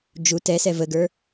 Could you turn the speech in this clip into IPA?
d͡ʒu tɛsɛ vəɡə˞

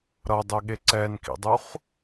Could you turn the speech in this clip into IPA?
ɾʌdˤeɠe ǀɛnkḭdˤuχ

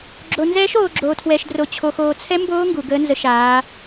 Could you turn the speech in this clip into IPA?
ɡ͡ǁo˧nzɛː˦˥ʃ oː˧ ɡ͡ǁoː˧tʰwɛ˧ʃdro˧ t͡ɕʰo˧xoː˧t͡sʰɛ˦˥ mboː˦˥ ŋɡu˧ ɡəː˦˥nzə˦˥ʃaː˦˥

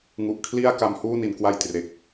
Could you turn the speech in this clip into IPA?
ŋu˨˩ʔkʰli˥˩a̯ ka˧mhuː˥˩ni˩˦n kwa˥˩jtre˨˩k̚

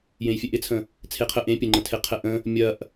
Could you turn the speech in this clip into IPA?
jẽjfʲɛʔɪt͡sʰə̃ | t͡sʰeqʰə ʔẽ pʲəŋ͡ǃə̃tʰeqʰɛ ʔə̃ | mʲɐʔ

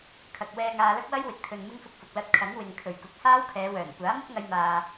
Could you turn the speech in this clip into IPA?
kʰɐ˨k̚ wɛː˧ŋaː˧lɐ˥k̚ wɐ˥jwɪ˨˥k̚ t̪ʰɵ˨nmɪ˥ŋfʊ˧k̚fʊ˨k̚ lɐ˧t̚kʰɐ˨˥ŋ wɪ˨ŋ kʰɵ˨˩ɥkʊ˨k̚ haː˥wkʰɛː˨˧wœː˨˩n kʷaː˨˥mʊ˥k̚ŋɐ˧jmaː˨

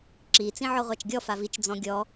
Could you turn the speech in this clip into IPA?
ǁi t͡sĩʕɔʁʷat͡ʃɡʲɔ favit͡ʃ d͡zɔ̃ɡʲɔ

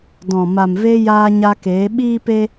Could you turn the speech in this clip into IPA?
dɔ̃˨ ma˨mve˧ jaː˧ɲa˧keː˨˦ ɓiː˦pe˦

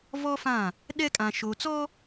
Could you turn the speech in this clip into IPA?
vɔ˦fã˦˨ | ɗɛ˦kʼã˨ ʃo˨t͡sɔ˦

